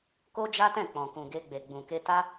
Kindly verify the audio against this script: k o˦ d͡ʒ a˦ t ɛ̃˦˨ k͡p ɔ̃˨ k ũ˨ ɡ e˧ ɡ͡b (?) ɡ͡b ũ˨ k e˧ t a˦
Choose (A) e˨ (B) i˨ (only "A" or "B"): A